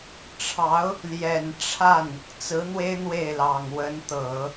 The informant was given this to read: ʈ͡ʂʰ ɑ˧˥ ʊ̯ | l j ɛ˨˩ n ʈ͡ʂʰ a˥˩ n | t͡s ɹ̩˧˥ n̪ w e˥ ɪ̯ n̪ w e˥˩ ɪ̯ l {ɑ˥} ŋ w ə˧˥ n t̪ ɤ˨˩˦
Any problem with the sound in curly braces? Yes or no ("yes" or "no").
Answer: yes